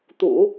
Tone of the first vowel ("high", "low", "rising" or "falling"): low